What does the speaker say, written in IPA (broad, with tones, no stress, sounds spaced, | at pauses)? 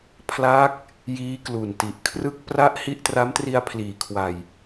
pʰ l aː˦˥ k̚ | j iː˦˥ k l u˨˩ n t i˨˩ ʔ kʰ r ɯ˦˥ k̚ p r a˦˥ ʔ h i˦˥ ʔ t r a˦˥ m t r i˧ a̯ pʰ l iː˩˦ kʰ w a˨˩ j